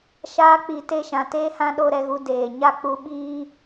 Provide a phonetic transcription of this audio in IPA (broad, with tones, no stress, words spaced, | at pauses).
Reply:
ʃaː˧k͡pi˨te˧ ʃã˨teː˦hã˦ɗo˦ ɾɛ˧ɣu˧deː˨ɲa˦ k͡pu˧ɓiː˦